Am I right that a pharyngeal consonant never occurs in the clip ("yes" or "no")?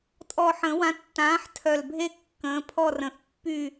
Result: no